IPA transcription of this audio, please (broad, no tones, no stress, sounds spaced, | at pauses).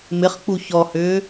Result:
m ɪ χ k͡p u ç ɔ h ʏː